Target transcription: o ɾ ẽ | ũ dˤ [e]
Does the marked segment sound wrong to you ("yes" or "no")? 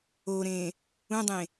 yes